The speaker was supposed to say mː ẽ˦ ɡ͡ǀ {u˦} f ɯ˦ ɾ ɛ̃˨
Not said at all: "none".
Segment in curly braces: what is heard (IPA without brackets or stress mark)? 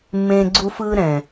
u˦